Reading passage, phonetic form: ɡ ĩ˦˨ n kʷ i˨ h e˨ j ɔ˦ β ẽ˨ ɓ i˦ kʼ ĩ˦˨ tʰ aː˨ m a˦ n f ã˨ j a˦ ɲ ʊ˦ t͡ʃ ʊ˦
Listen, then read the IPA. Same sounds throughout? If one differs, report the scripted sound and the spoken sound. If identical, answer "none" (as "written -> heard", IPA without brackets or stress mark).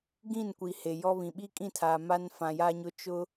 ẽ˨ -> ĩ˨